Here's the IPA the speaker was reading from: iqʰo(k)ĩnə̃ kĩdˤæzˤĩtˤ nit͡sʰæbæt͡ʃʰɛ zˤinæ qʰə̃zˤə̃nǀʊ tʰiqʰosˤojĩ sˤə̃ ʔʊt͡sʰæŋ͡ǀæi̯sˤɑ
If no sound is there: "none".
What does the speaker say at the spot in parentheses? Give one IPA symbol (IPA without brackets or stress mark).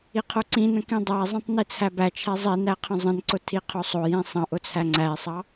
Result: ǀ